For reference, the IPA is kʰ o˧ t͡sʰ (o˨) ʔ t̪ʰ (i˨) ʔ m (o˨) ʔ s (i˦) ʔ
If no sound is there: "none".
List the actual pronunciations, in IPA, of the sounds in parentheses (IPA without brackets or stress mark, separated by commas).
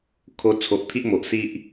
o˨, i˦, o˨, i˦